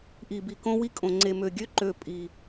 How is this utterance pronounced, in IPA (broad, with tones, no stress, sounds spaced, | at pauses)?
ʔ i˨ b i˨ k õ˦ w i˦ kʼ õ˨ ŋ͡ǀ e˨ m ø˨ ɡʲ ø˦ ǃ ø˦˨ pʼ i˨